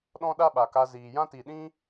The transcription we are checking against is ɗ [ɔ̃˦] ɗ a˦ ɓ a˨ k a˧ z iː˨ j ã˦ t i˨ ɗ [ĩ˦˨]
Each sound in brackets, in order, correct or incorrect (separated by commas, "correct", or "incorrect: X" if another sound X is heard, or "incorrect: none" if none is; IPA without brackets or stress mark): correct, incorrect: ĩ˦